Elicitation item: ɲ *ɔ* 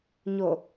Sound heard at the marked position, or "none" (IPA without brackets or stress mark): o